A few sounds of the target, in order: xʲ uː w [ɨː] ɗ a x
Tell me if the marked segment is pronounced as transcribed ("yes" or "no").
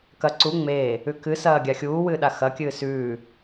yes